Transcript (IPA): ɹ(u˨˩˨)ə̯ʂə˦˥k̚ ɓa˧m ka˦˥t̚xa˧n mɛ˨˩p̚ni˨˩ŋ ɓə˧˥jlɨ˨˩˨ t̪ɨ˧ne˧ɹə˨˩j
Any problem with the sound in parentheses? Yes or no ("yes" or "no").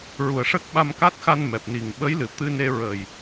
no